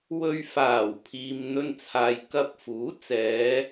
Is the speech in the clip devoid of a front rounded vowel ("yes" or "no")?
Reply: yes